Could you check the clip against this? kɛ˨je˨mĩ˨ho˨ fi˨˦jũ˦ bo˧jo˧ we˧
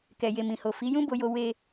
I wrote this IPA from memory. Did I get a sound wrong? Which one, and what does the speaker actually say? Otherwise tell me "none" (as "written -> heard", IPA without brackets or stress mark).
none